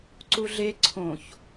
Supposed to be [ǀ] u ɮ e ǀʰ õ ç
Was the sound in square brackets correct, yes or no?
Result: yes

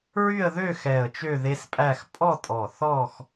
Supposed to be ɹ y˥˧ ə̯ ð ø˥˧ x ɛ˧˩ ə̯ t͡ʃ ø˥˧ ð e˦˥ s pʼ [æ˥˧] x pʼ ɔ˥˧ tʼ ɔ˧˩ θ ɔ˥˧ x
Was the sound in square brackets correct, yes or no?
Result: yes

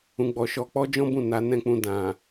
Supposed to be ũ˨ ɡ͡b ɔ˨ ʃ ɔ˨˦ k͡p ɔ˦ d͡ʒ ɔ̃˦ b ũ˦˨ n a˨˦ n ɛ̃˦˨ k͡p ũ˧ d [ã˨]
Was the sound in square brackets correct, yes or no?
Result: yes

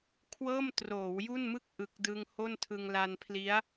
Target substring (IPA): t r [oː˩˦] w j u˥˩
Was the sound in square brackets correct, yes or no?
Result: yes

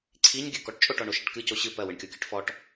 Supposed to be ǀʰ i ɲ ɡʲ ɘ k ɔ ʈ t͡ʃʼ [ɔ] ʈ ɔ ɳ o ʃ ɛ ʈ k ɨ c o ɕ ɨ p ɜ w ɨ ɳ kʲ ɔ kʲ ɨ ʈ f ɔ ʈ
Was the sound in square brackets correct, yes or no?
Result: no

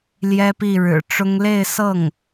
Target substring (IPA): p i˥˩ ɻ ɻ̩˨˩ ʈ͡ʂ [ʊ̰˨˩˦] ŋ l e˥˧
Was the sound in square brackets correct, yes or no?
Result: no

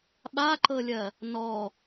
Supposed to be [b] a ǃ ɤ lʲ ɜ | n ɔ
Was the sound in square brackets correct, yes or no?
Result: no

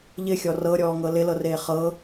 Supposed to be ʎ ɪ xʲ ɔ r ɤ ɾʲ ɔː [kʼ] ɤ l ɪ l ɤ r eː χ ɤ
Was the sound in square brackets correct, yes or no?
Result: no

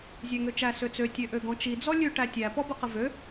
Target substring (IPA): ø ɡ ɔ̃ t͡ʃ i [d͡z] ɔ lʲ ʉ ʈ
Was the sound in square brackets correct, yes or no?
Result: yes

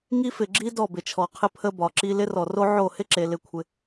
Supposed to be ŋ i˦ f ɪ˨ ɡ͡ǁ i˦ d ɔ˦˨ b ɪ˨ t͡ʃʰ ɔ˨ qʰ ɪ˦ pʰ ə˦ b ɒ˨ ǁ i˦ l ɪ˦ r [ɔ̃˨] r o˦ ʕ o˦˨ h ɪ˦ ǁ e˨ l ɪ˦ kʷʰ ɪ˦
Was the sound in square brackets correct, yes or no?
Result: no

